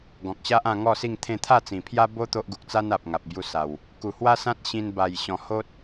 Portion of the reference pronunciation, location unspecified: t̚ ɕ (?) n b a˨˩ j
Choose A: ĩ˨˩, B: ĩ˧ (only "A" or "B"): B